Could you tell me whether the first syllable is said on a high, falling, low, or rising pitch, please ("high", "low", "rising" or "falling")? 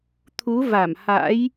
rising